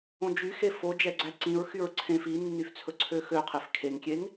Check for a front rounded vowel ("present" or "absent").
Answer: present